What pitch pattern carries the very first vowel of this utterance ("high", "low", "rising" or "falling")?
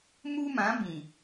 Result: high